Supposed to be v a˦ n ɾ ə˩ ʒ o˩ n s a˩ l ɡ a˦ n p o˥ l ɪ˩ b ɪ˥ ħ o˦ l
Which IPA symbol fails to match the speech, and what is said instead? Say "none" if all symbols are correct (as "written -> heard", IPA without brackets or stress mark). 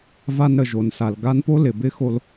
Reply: ħ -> x